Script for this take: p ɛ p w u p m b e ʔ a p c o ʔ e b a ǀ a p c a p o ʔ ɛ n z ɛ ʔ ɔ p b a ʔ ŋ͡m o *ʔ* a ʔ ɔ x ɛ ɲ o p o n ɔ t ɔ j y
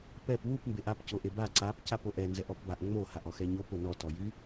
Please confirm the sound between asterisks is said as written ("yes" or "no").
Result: no